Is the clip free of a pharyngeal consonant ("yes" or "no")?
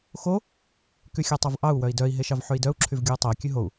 no